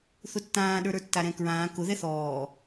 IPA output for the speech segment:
θ ʊ tː ãː ɗ ə˞ ɾ ə˞ tː a ɾ ɛ̃ k ɹ ãː k ʊ ð ɛ θ ɔː

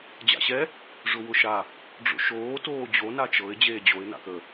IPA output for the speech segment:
d͡ʑ a̰ ɕ ɛ | ʐ ʊ w ʊ ʃ a | ɖ͡ʐ o̰ ʃ oː t oː d͡ʑ o n a t͡ʃ ɤ ɪ̯ d͡ʑ eː d͡ʑ o ɪ̯ n a̰ k ə

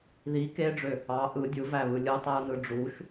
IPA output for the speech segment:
ð i k e ɖ͡ʐ ø | ɑ ʔ ɯ dʲ ɯ v æ β ɯ lʲ ɯ tˤ æ u̯ n ɯ ɖ͡ʐ u ʃ

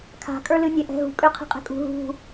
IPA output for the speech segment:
kʰ a̤ kʼ ə˞ l ɨ nʲ ɛ ʔ ɛ̤ ɦ ṳ kʼ ø qʰ ɛ̤ qʼ ɛ̤ kʼ ṳ ɦ ṳ

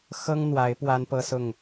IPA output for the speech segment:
x ɤ˦ ŋ n̪ w a˨˦ ɪ̯ p w a˦ n p ɤ˦ s ʊ˥˨ ŋ

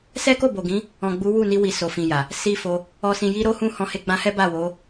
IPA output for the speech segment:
s ɛ˦ k o˦˨ b o˨ ɡ ĩ˨˦ | ɔ̃˨ ɡ͡b u˨˦ w u˦˨ n i˧ w i˧ s o˨ f ĩ˨ j a˨ | s i˧ f o˧ | ɔ˨ s ĩ˨ j i˧ ɾ o˦ h ũ˧ h ɔ̃˧ h e˧ ɡ͡b ã˧ h ɛ˦ b a˦˨ w o˨˦

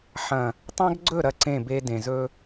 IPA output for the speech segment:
ħ ɐ̃˨ | tˤ ã˦ ɡ ɡ͡ǀ ɵ˦˨ ɾ ɐ˦˨ ǀ ẽ˦˨ b e˦ d ẽ˨ z ɵ˦

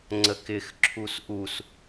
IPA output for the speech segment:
ŋ͡ǀ ə k ɪ x ǁʰ u s ʔ u s

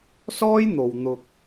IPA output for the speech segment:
s ɔː˥ j n̪ o˨ w n̪ ʊ˧ k̚

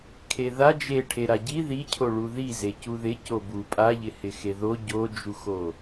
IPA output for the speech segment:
kʰ e ð a d͡ʒ e ʈʰ e ɾ a ɟ i ð i cʰ o ɭ u ð i z e c u ð ɪ c o b u pʼ a ʎ ɪ h ɪ x e ð o ɟ o d͡ʒ u x o

